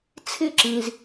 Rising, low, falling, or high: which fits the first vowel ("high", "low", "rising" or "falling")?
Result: high